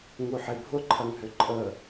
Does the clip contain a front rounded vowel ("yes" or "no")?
yes